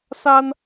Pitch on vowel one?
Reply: high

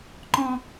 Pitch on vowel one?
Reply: high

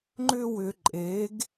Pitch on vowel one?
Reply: falling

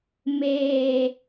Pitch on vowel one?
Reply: low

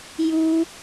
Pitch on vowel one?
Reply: high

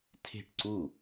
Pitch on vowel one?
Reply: falling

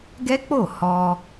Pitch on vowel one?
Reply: high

